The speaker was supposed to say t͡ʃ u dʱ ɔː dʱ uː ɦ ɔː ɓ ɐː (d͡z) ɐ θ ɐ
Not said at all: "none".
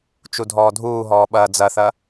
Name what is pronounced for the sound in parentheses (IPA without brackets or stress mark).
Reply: d͡z